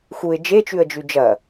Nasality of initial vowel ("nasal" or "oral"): oral